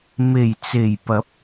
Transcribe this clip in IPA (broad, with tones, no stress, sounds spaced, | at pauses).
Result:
m e˨˩ j t͡s e˨˩ j p ɐ˨˥ p̚